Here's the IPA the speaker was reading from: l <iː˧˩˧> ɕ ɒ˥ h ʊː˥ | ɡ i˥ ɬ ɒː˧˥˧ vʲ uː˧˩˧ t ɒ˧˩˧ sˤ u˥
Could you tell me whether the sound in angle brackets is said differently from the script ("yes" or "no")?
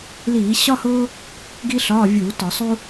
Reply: no